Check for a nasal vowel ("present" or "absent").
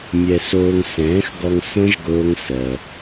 present